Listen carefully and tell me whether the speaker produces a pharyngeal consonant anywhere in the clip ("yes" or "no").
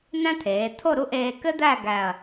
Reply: no